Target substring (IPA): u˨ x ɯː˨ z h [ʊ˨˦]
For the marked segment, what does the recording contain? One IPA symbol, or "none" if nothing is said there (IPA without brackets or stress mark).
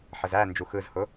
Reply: ʊ˨˦